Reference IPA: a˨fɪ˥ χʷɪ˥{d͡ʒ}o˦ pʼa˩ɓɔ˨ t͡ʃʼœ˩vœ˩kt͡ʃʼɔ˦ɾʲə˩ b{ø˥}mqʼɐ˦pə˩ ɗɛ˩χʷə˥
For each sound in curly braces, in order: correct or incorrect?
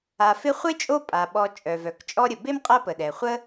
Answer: incorrect: t͡ʃʼ, incorrect: e˥

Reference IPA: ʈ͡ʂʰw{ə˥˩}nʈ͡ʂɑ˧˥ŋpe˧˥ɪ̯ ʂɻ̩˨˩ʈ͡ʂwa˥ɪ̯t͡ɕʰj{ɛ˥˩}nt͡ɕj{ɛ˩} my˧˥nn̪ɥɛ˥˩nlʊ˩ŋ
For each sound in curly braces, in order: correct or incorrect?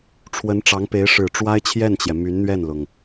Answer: incorrect: ə˧˥, correct, correct

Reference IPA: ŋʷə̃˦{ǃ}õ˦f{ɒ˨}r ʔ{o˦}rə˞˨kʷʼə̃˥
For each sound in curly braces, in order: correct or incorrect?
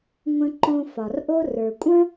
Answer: correct, correct, correct

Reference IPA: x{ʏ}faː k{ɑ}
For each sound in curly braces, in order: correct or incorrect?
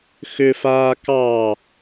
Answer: correct, correct

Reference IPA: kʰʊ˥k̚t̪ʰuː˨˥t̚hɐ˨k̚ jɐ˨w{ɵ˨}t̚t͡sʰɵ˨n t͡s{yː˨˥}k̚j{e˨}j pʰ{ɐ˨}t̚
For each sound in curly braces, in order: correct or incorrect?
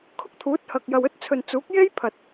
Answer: incorrect: ɵ˥, incorrect: uː˨˥, incorrect: e˥, correct

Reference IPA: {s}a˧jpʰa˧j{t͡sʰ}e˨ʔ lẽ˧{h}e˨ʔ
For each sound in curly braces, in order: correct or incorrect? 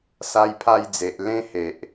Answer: correct, incorrect: d͡z, correct

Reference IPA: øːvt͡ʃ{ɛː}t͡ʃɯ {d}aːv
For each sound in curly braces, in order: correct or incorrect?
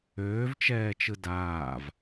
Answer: correct, correct

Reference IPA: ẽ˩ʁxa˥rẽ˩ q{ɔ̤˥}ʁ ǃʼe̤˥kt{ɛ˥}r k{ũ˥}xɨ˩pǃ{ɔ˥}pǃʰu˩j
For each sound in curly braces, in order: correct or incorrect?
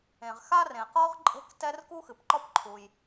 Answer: incorrect: ɔ˥, correct, incorrect: u˥, correct

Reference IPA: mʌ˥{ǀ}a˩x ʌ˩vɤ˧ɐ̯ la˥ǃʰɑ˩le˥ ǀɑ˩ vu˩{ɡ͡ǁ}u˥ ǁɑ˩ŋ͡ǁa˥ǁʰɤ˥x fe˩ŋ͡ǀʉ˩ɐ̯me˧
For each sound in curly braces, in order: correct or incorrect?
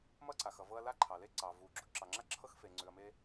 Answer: correct, correct

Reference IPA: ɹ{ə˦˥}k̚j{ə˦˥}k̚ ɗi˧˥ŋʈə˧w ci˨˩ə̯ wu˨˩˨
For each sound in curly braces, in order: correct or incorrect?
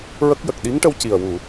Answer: correct, incorrect: ə˨˩

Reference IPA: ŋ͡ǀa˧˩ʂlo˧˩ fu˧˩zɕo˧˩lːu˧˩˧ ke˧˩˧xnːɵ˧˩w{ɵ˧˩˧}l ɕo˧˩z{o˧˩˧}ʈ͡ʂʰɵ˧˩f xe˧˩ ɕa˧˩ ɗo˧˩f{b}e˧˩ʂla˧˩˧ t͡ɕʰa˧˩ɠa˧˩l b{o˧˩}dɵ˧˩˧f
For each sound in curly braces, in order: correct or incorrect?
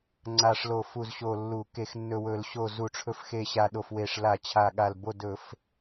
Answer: correct, incorrect: u˧˩˧, incorrect: w, correct

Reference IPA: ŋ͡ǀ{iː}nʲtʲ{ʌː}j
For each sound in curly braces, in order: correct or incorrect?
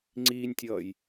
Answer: correct, correct

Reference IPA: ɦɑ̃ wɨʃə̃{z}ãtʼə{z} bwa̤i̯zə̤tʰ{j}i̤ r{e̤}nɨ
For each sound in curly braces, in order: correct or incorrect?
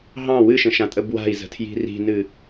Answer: incorrect: ʃ, incorrect: none, correct, incorrect: i̤

